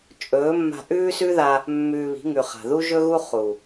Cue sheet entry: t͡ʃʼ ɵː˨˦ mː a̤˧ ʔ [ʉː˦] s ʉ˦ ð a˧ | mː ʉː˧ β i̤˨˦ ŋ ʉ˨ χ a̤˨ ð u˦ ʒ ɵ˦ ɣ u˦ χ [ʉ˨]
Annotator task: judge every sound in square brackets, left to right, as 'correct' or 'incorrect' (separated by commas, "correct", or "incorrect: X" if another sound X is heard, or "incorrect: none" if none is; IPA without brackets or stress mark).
correct, incorrect: u˨